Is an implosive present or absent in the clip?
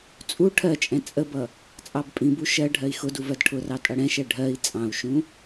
absent